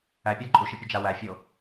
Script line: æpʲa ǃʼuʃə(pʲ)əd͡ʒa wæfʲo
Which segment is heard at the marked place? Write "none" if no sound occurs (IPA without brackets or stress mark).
pʲ